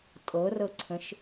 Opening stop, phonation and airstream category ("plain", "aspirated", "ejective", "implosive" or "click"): ejective